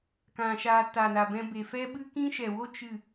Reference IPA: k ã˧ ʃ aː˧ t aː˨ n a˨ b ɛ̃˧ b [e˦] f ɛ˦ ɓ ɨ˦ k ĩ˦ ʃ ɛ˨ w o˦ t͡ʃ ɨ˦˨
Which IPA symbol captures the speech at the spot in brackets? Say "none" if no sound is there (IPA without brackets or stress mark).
e˨